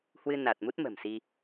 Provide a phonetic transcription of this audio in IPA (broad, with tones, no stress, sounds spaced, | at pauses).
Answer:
h w ɨ˧ n a˨˩ t̚ m u˦˥ t̚ m ə̤˨˩ m s i˧